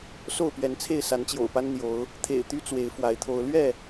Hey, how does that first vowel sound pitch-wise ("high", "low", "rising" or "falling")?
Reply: falling